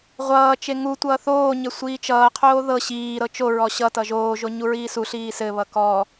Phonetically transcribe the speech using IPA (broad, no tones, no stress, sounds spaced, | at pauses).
ʁʷ ʌː t͡ʃ e ŋ u tʷ ʌː θ oː ɲ ɘ sʷ iː t͡ʃ ʌː qʰ oː ð ɤ ɕ iː ɾ ɤ t͡ʃ o ɹ ɔ ɕ ʌ t ʌ ʒ oː ʒ o ɲ u ɹ iː s u ɬ iː s ɘ β ʌ k ɔ